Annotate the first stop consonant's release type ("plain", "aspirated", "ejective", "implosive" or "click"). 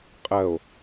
ejective